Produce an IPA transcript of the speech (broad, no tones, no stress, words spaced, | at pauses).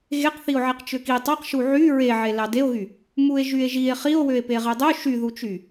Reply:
ɣeqθio̯ʕeq t͡ʃøki tˤɑqʃu ʕy ɹeʕe lɑdeo̯ɣy | mue̯ʒye̯ʒie̯ χio̯ wøe̯peʁedˤø ʃyðut͡ʃy